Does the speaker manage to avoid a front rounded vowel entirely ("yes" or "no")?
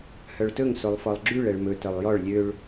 no